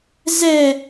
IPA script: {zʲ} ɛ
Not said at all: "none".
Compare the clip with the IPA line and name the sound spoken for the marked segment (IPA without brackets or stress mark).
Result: z